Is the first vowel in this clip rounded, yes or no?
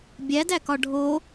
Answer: no